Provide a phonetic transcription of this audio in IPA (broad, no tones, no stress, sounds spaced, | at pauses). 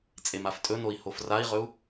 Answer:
t͡sʼ e m a f tʼ ɵ n o i̯ h o f r a i̯ ʁ ɵ u̯